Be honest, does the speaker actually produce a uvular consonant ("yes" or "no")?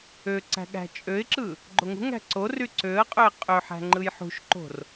yes